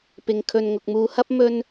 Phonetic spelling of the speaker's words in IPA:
p ɪ˧ ŋ kʰ ɵ˧ n ŋ ʊ˧ k̚ m uː˧ h ɐ˥ p̚ m ɵ˥ n

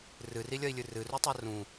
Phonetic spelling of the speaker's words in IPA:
r ɨ r i lʲ ɐ i̯ lʲ ɨ r ɨ r u tˤ ɐ r ũ

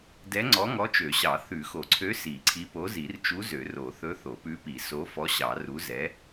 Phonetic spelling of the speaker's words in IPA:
d ɛ˧˥ ŋ͡ǀ ɔ˧˥ ŋ ɔ˧˥ t͡ʃ ø˨˩˦ ɕ ɑ˨˩˦ θ ʉ˨˩˦ x o˨˩˦ ǀʰ ø˧˥ s i˨˩˦ ǀʰ i˧˥ p o˧˥ z i˨˩˦ r t͡ʃ u˧˥ z ø˨˩˦ r o˨˩˦ θ ɵ˧˥ θ o˨˩˦ p ʉ˧˥ p i˨˩˦ s o˧˥ f ɔ˧˥ ɕ ɑ˨˩˦ r u˧˥ z ɛ˧˥

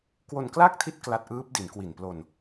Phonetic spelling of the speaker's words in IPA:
k w o˧ n k l aː˥˩ k̚ tʰ i˦˥ t̚ k l a˦˥ t̚ ʔ ɯː˦˥ p̚ d i˩˦ n k w i˨˩ n p l o˧ n

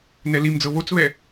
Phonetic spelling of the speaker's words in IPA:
n ɛ l i m d͡z ɤ β o t͡s β ɛ

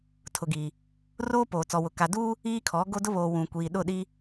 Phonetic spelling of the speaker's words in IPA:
tʰ ʊ˨ ɡ iː˨ | r oː˦ p oː˨ t͡s ɔ˨ w ʊ˨ k a˨ d uː˦ | iː˦ kʰ ɔ˨˦ ɡ o˦ d ʊ˦ β oː˨ w ũ˨ kʷ iː˨ ɗ ʊ˦˨ ɗ i˦

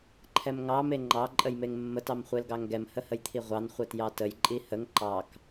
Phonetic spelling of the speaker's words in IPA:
ǃʰ ɛ m ŋ ɑ m e ŋ͡ǃ ɑ ǃʼ ə j m e ŋ mː ə t ɑ m χʷ e l ɡ ɑ ŋ ɡ ɛ m h ə h ə j t̪ʰ i ʁʷ ɑ n χʷ ɛ t j ɑ t ə j ǃʼ i h ə ŋ ǃ ɑ k

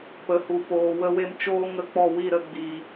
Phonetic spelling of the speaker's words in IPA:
p ə˨ h u˨ p oː˨ w ə˧ w e˧ m t͡ʃ oː˦ ŋ ə˧ k͡p ɔ˦˨ w i˦˨ ɾ ə˧ ɡ͡b i˨

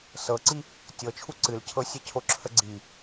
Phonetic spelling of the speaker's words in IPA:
s ɤ ǀ i | tʲ ɤ t͡ʃʰ u ǀ ɨ l cʰ ɤ sʲ e cʰ o ǁʰ ə ɡ͡ǀ i

